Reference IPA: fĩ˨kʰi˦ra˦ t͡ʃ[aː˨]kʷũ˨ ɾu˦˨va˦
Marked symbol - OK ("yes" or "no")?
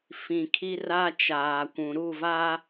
yes